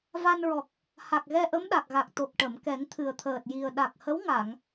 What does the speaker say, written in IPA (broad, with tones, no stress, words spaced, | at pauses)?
va˧nɹɔ˨˩k̚ | ha˨˩k̚ɣɛ˧ʔə˧˥m ɗa˨˩k̚ɣa˨˩k̚ t̪o˨˩k̚ʈə˨˩˨m kɛ˨˩˦ŋt̪ʰɨ˨˩ə̯t̪ʰəː˨˩t̚ ji˨˩ə̯ ɗa˨˩k̚hə˧˥wŋa˨˩˨ŋ